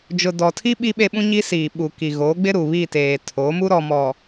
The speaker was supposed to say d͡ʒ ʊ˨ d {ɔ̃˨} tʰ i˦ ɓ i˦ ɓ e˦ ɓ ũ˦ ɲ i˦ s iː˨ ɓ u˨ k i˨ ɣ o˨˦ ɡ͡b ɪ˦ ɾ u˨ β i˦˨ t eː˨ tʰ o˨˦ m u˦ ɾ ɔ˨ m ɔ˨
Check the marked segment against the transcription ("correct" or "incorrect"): incorrect